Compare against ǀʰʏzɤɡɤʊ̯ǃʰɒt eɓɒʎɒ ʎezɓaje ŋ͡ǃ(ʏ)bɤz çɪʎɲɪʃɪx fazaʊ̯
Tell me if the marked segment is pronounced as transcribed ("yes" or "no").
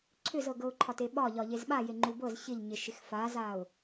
no